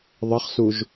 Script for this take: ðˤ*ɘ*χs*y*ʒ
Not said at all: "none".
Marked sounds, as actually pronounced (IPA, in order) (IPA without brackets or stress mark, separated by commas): ɘ, u